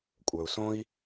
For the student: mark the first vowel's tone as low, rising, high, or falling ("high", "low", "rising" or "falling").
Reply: low